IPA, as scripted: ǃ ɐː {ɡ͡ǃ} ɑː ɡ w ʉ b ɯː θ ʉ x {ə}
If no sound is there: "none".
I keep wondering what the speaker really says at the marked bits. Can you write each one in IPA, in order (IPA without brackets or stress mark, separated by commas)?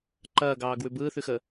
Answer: ɡ, ə